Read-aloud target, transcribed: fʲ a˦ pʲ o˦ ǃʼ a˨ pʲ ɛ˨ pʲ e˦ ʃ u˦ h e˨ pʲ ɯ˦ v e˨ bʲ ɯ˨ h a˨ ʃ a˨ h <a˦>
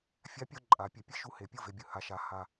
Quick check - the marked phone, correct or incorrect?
incorrect